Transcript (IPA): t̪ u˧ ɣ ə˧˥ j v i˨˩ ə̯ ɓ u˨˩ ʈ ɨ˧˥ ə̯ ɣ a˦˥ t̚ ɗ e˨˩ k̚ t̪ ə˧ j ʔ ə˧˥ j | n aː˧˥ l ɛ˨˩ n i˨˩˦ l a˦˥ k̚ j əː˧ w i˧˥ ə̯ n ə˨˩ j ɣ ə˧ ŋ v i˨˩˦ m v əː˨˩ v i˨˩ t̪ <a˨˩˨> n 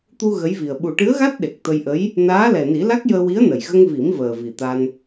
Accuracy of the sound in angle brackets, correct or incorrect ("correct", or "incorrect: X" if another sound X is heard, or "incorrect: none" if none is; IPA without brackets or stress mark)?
incorrect: a˧